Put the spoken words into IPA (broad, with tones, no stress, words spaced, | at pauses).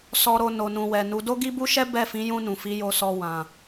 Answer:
sɔ˨ɾo˨ no˨nũ˨wɛ˨nu˨˦ do˦ɡi˦bu˦ʃɛ˦ bɛ˦˨fĩ˨˦jũ˧nũ˨ fi˨˦jo˧sɔ˧ wã˨